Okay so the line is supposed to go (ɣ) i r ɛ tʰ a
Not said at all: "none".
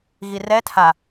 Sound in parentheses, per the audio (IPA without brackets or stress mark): ɣ